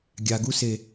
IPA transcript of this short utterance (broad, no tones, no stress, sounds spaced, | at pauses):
ɡʲ a ɡ u s e